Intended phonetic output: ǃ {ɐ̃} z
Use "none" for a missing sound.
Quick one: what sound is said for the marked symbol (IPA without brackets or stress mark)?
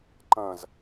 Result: ɐ̃